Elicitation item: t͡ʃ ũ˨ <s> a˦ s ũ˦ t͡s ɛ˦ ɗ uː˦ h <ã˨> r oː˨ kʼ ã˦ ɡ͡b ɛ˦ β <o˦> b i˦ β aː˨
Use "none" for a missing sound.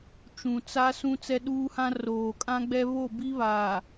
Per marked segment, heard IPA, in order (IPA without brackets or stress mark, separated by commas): t͡s, ã˦, o˦˨